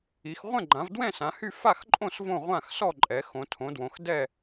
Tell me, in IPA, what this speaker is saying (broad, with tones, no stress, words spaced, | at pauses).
i˩˧xʁʷɛ̃˥˨ɡ͡ǃã˩˧v dwɛ̃˥˨ sã˩˧hy˥˨ fa˥˨xǃʼõ˥˨s võ˥˨ʁʷã˥˨xsɔ˥˨ ǃʼɛ˩˧xõ˩˧ tʰõ˩˧dwõ˩˧x dɛ˥˨